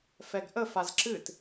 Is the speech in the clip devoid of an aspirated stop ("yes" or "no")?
yes